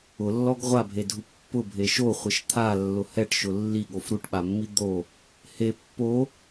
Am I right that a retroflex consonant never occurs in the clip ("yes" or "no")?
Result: no